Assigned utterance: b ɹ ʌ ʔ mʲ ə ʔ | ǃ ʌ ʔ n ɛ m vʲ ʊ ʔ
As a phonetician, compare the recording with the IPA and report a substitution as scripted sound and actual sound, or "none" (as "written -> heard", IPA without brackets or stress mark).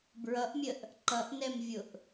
none